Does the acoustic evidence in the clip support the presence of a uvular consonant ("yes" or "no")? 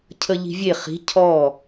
yes